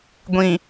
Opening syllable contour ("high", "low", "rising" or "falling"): low